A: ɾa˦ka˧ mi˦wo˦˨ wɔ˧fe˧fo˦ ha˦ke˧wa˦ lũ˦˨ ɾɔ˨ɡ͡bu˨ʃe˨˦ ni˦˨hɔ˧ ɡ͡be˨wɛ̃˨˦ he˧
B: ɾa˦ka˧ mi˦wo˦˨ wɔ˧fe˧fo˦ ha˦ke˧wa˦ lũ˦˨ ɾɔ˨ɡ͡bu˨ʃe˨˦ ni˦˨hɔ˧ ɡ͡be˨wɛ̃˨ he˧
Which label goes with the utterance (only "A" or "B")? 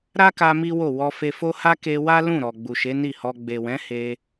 A